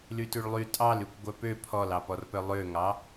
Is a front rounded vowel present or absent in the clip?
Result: present